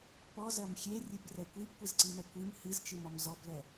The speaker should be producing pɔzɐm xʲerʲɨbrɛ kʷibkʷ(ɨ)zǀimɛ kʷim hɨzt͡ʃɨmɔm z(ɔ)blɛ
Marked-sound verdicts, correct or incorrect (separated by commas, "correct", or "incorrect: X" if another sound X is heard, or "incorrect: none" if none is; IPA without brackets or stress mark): correct, correct